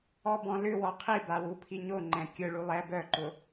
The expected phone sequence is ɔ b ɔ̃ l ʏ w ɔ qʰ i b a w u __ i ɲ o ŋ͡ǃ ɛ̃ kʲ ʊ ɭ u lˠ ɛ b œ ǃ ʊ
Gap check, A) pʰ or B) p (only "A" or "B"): A